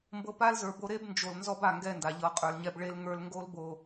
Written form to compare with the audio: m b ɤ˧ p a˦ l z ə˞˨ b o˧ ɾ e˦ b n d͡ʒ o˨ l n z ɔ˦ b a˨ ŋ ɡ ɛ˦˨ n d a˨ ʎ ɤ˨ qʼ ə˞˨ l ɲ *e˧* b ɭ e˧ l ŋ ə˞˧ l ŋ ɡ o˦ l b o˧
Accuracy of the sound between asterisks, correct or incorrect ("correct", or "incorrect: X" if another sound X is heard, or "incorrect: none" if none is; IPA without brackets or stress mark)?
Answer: incorrect: ɛ˧